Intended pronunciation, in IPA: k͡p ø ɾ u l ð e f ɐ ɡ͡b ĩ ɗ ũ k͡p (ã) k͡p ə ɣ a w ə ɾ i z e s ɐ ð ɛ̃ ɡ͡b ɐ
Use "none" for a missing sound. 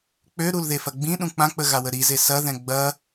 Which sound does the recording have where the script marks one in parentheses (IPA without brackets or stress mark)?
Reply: ã